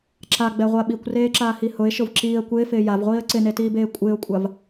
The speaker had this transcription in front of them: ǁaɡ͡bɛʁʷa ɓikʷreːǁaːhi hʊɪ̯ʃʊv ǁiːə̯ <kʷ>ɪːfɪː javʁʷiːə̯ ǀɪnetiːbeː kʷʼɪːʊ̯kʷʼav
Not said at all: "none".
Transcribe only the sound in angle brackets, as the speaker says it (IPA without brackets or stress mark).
kʷ